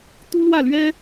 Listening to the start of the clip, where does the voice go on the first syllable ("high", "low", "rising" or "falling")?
high